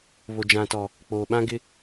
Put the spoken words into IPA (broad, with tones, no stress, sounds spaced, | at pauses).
β o˨ d͡ʒ ã˨ t ɔ˨ | k͡p oː˨ ɓ ã˦ ɡ ɪ˦